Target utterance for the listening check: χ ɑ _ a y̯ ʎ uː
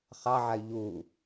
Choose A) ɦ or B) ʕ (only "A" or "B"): B